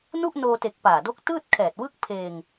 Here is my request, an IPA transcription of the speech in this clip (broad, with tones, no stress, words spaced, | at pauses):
nu˥˩ʔnoː˧te˨˩k̚ paː˨˩do˦˥k̚ tɯː˥˩t̚kʰɛː˨˩t̚wɯ˥˩k̚pʰeː˧ŋ